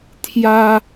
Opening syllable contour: high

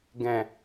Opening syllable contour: low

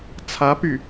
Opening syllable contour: rising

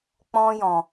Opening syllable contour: high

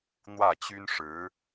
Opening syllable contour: falling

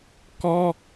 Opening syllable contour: high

